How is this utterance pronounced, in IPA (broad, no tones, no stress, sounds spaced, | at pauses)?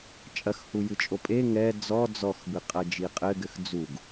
t͡ʃʼ ɐ x h u j ɨ t͡ʃʼ o pʼ e ŋ ɛ d͡z ɔ d͡z ɔ x b ɨ qʼ ɐ d͡ʒ i qʼ ɘ ɡ ɘ x d͡z u ɡ